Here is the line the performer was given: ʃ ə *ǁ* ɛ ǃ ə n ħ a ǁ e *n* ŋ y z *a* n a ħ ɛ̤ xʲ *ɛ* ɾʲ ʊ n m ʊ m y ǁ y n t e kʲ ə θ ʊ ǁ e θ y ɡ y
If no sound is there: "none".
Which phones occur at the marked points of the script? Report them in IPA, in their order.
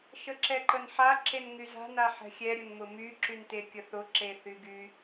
ǁ, n, a̤, ɛ

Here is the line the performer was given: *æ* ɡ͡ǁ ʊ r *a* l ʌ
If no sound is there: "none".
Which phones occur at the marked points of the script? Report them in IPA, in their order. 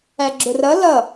æ, ʌ

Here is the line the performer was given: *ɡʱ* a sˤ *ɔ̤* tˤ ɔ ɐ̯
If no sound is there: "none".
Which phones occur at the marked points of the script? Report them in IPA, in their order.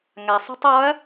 ŋ, ɔ̤

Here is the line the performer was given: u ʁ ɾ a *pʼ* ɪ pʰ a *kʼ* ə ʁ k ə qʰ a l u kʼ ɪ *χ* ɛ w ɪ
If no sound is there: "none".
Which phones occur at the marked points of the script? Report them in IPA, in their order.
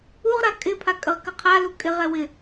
kʼ, kʼ, ʁ

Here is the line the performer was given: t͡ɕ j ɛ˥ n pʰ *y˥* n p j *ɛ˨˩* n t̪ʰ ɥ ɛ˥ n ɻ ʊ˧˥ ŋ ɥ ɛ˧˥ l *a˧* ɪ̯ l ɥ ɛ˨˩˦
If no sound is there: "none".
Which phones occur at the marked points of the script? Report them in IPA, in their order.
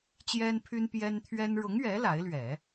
y˥, ɛ˥, a˧˥

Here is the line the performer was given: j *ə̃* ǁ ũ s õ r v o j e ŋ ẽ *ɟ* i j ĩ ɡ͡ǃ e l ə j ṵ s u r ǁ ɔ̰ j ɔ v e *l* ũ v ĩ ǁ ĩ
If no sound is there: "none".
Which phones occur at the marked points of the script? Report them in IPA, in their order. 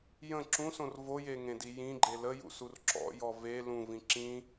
ə̃, d, l

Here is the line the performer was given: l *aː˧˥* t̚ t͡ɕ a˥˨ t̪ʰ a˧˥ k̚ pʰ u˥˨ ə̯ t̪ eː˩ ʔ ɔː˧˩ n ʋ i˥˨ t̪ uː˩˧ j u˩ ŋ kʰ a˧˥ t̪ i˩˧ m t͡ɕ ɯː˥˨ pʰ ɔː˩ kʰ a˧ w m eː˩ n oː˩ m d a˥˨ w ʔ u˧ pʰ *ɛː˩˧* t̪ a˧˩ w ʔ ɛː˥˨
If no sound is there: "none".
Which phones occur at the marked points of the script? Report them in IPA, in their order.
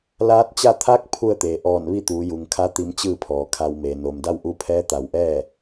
aː˧˥, ɛː˧˥

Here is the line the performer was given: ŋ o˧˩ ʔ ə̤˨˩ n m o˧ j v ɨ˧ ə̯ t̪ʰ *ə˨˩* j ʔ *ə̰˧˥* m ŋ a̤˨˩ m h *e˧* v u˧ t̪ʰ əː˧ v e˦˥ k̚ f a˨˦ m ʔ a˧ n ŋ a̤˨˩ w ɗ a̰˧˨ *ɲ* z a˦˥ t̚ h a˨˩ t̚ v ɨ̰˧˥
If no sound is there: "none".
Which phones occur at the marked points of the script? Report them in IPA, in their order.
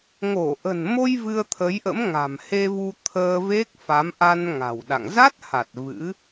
ə˨˦, ə̰˧˥, e˧, ŋ

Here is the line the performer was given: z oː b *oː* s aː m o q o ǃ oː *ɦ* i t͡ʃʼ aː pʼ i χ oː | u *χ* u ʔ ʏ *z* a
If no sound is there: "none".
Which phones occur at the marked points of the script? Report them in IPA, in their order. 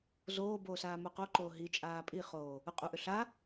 oː, ɦ, qʼ, ɬ

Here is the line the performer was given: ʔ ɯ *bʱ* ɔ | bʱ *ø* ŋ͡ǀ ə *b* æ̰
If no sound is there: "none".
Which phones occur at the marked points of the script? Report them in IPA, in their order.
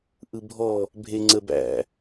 bʱ, e, b

